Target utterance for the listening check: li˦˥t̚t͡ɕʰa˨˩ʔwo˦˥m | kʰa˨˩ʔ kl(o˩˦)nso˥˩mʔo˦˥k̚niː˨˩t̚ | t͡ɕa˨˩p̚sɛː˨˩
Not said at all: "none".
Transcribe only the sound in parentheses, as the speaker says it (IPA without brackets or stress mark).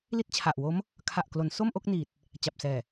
o˩˦